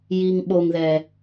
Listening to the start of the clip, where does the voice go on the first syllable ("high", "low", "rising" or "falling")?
low